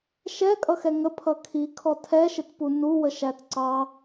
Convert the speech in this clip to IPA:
ʃ ɛ kʼ ʌ x ɛ ŋ ə pʰ ʌ kʰ i kʰ ɔ tʰ ɛ ʃ ɪ t p u n u w ə ʃ æ t ǀ ɑ

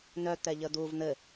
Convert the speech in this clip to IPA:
n œ t̪ ɛ ʎ ə d̪ u v n̪ ɘ

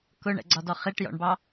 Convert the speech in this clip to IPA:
k ʊ ɳ ɛ̰ ɡ͡ǀ ɒ d ɔ χ i ʈ j ɔ̰ ɳ b ɑ

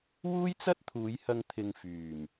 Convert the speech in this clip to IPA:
w uː˥ j t͡s ɐ˥ t̚ t̪ʰ uː˨˧ j h ɐ˧ ŋ t̪ʰ ɪ˧ ŋ f yː˨˩ m

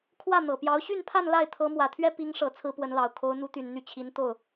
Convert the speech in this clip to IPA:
kʰ w ä˥˩ n̪ ɤ˨˩ p j ɑ˧˥ ʊ̯ ɕ y˥˧ n pʰ a˥˧ n l a˥˩ ɪ̯ t̪ʰ ɤ˧˥ m w ä˨˩ t̪ʰ ɥ ɛ˥ p i˧˥ ŋ ʂ ɤ˨˩ t͡sʰ ɹ̩˥ p w ə˧˥ n l ɑ˨˩ ʊ̯ kʰ o˧˥ ʊ̯ n̪ u˧˥ t̪ y˨˩ n n̪ y˥˩ t͡ɕʰ i˧˥ n t̪ o˥˩ ʊ̯

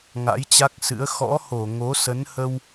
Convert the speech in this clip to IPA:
ŋ a̰˧˥ j t͡ɕ a˦˥ k̚ s ɨ̰˧˥ ə̯ x ɔ̰˧˥ h o˧˩ ŋ o˨˦ s ə˨˦ n h ə˧ w

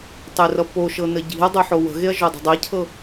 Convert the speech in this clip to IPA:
tˤ e r ʌ p o ʃ ɤ n ə ɟ i̤ ɐ̯ dˤ o ħ o w ə̤ ɣ e ɐ̯ ʒ o dˤ ə̤ dˤ e cʰ ɤ

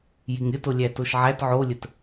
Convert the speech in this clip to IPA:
j i ŋ ɾʲ ə t o lʲ æ t o ʃ ʕ æ t ʕ o lʲ ə t

